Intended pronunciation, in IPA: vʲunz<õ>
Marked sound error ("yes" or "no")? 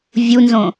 no